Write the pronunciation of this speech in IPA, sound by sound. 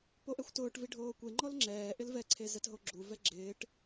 p o ʔ ɛ xʷ t ʊː ʈ v i ɖʱ oː kʷ e ŋ͡ǃ ɔ l ŋ͡ǁ ɛː ʔ ɪ l v ɛ ǀʰ e z ɛ t ɦ o ɡ͡ǁ u v ɛ ɡ͡ǁ ɪː ʈ

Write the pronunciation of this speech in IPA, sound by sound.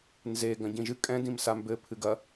n z e ɡ ɐ̃ ɟ ĩ ʒ ɨ kʼ ɛ̃ d ĩ m s a m b ɘ pʰ ɨ ɡ ɐ

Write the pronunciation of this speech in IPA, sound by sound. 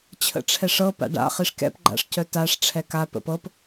t͡ɕʰ ə̰ ʈ͡ʂʰ ɛ ʂ ɤ p a̰ ɖ a̰ χ i ʂ k ɛ̰ p ɡ͡ǃ a̰ ʂ c œ t a ʂ ʈ͡ʂʰ ɛ k a p ə̰ p ɤ p

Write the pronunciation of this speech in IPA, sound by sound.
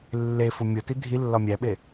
lː e f u mʲ o t i dʱ i lː ɒ mʲ æ ɓ e

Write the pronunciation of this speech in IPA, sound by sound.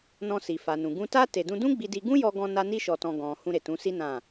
n ɔ̃˧ s i˨ f a˨ n ũ˨ ɡ ũ˧ t a˦ t e˧ d ũ˦ d ũ˦ ɡ͡b i˧ d i˧ ɡ ũ˦ j ɔ˧ ɡ ɔ̃˧ n a˦ n i˦ ʃ ɔ˧ t ɔ̃˧ ɡ ɔ̃˨ h ũ˧ ɾ e˨ t ũ˨˦ s i˦ n ã˦˨

